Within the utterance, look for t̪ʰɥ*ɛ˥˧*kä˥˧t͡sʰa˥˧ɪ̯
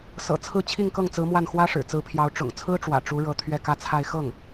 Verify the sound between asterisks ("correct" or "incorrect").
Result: correct